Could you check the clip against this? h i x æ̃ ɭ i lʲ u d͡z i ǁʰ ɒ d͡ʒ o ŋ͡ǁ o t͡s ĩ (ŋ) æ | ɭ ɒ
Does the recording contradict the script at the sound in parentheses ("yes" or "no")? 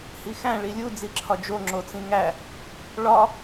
no